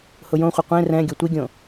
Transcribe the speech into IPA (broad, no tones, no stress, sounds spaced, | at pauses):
h ʊ j õ χʷ ɪ qʷ ẽ r ɛ̃ ɡʲ ʊ tʷ i ɡʲ õ